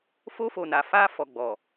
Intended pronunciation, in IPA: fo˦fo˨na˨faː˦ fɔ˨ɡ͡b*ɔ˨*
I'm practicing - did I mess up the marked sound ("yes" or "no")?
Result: no